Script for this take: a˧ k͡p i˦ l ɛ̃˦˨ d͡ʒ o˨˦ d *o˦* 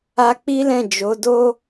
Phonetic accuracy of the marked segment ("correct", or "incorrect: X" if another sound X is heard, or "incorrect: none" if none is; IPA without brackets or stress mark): correct